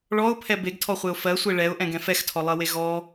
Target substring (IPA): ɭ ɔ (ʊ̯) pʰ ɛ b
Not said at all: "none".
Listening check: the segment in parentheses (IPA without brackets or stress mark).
ʊ̯